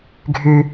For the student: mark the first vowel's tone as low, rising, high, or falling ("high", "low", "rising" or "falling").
high